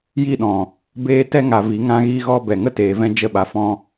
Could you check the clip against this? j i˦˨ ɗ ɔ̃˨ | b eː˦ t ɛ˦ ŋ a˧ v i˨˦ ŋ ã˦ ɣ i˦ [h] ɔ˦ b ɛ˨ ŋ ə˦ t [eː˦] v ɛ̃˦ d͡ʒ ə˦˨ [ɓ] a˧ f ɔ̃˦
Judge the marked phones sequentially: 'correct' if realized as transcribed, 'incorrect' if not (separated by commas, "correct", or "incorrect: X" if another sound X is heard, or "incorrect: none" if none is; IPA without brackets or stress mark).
incorrect: ɣ, incorrect: eː˧, correct